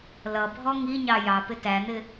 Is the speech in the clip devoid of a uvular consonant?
yes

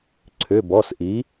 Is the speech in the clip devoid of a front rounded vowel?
no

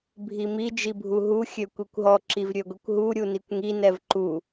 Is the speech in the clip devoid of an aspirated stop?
yes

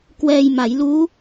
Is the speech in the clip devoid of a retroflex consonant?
yes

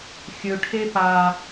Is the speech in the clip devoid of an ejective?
yes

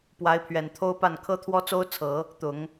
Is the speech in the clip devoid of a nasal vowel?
yes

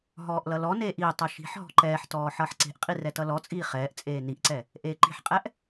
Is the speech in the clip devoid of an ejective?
no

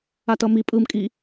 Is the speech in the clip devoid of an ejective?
no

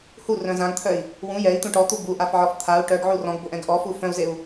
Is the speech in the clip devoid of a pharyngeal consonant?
no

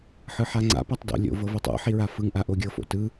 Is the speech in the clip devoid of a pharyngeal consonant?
no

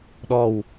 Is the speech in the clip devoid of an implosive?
no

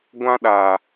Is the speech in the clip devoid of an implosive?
no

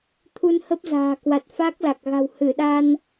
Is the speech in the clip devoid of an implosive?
no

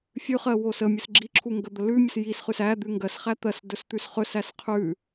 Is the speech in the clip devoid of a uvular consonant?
no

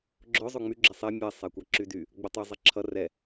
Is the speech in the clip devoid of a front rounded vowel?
no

